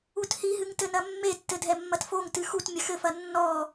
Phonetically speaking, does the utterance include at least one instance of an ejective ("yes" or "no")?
no